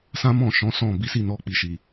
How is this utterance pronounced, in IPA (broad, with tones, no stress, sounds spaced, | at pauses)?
s ã˦ m ɔ̃˦˨ ʃ ɔ̃˨˦ s ɔ̃˦˨ b i˨˦ s i˦˨ n ɔ˧ k͡p i˨ ʃ i˨